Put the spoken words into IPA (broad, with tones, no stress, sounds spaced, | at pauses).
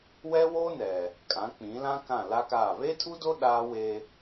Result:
w ɛ˦ w o˦ n ɛ˨ | kʼ ã˨˦ k͡p ĩ˨˦ l ã˦ k ã˦˨ l a˦ k aː˦˨ β e˦ tʰ u˦ d o˦ ɗ aː˦ w e˦